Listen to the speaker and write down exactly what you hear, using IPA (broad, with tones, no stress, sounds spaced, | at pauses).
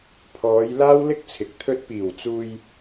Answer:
pʰ ɔː˨˧ j l aː˥ w l ɪ˥ k̚ t͡sʰ ɪ˨ k̚ t̪ʰ ɵ˥ t̚ p iː˨˩ w t͡s uː˧ j